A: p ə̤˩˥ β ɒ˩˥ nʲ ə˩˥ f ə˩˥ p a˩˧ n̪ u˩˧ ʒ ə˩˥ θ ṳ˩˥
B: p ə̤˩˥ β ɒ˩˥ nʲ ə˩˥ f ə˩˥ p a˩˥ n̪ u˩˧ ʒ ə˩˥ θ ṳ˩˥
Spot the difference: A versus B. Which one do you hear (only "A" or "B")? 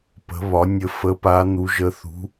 A